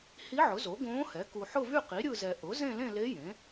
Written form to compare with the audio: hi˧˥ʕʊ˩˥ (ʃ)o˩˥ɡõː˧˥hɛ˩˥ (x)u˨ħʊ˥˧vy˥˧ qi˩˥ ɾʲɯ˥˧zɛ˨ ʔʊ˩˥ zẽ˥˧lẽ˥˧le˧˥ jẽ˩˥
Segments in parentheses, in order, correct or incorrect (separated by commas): incorrect, incorrect